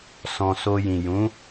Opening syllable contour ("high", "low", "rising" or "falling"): low